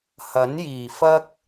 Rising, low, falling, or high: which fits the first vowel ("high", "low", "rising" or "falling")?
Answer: rising